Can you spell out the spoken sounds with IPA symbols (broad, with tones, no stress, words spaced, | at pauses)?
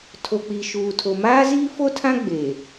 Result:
tʰo˨k͡pi˨ʃuː˨ tʰo˨maː˦ziː˦ fo˦tʰã˦ ɡ͡beː˨